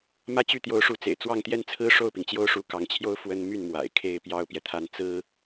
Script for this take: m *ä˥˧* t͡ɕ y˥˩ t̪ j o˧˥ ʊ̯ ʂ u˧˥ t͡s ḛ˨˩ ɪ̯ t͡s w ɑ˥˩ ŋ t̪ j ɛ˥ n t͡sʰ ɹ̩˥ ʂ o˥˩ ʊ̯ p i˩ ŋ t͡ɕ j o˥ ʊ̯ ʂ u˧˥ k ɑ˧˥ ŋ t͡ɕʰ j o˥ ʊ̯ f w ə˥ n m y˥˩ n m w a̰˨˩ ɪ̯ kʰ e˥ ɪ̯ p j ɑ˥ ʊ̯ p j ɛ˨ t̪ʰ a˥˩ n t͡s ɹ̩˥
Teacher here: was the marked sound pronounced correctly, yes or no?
yes